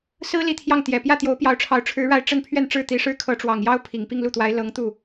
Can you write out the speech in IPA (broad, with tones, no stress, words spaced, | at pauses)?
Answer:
sɹ̩˥ li˥˧t̪ʰjɑ˥˩ŋt̪jɛ˨˩ pjä˥˩t̪jo˧˥ʊ̯pjɑ˧˥ʊ̯ʈ͡ʂʰɑ˧˥ʊ̯ ʈ͡ʂʰɻ̩˧˥ ɻa˥˧ɪ̯ ʈ͡ʂə˥˧n pʰɥɛ˥˧nʈ͡ʂɻ̩˥˩ t̪i˧˥ʂɻ̩˥ kʰɤ˧˥ʈ͡ʂwɑ˨˩ŋjɑ˥ʊ̯ pʰi˨˩ŋpi˥˧ŋlu˥˩t̪wa˧˥ɪ̯ lɤ˧˥ŋt̪u˥˩